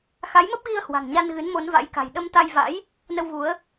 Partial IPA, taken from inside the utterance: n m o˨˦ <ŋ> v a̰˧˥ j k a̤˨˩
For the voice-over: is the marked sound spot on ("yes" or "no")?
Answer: no